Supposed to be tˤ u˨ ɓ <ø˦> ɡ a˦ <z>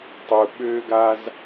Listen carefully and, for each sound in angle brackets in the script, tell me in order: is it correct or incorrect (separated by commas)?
incorrect, correct